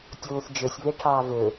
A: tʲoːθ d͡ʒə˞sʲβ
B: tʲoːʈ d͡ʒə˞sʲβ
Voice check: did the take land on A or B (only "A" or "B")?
A